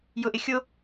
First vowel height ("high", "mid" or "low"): high